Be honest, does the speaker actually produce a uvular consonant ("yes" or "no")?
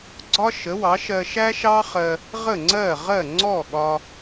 yes